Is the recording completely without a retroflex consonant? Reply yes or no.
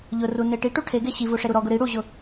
no